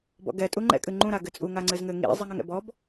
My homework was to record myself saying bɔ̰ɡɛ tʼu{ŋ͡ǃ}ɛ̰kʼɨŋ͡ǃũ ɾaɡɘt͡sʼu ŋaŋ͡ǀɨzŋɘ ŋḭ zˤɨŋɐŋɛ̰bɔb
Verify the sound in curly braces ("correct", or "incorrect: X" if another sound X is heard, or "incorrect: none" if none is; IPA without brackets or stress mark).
correct